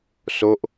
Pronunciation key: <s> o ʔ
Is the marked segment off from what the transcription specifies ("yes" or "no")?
no